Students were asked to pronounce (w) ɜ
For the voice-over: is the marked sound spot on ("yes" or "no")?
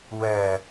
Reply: yes